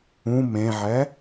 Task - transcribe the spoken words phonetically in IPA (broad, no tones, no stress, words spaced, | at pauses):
ũ mẽʕɛ